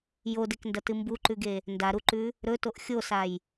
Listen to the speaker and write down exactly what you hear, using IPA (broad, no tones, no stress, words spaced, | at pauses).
jodekndɐtɨ mbuǃʉɡe | ndaɾuǃʉ | ɾɵtoʔ xʲosaj